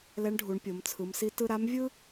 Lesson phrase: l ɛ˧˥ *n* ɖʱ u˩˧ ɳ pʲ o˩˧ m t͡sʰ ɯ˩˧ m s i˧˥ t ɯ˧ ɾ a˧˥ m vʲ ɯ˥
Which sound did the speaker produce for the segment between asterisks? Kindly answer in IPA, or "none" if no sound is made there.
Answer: ɳ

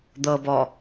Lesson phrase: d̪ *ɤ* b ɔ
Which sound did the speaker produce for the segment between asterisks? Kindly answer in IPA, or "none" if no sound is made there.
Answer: ɤ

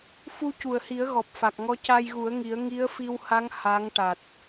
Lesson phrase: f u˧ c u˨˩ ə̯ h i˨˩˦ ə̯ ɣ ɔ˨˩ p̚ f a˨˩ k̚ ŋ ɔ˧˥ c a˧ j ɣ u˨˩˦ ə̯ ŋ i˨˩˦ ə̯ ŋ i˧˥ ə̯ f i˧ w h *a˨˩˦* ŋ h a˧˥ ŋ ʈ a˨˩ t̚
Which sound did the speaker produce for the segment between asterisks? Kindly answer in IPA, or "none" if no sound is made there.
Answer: a˧˥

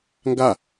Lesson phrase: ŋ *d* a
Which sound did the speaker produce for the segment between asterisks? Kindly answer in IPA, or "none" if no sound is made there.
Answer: ɡ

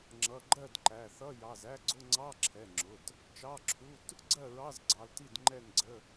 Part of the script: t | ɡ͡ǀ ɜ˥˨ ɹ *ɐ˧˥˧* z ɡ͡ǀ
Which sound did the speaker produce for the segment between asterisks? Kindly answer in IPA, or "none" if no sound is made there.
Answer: ɑ˧˥˧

